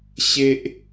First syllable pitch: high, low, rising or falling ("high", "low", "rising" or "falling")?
high